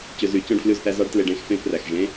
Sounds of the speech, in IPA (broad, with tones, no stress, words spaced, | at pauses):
t͡ɕø˨zy˨˩˦ t͡ɕɔ̃˧˥˧ɖflʉ˥˩zθæ˧˥˧ zɑ˧˥˧ɖtle˨ɖẽ˧˥˧x fẽ˧˥˧pʰræ˨xʒẽ˧˥˧